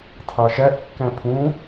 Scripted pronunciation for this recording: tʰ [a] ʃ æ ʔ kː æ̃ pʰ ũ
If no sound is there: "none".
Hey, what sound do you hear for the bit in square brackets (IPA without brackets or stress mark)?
ɑ